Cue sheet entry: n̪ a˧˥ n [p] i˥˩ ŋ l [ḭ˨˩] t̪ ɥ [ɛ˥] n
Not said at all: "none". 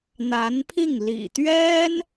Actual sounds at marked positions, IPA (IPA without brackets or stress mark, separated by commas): pʰ, ḭ˨˩, ɛ˥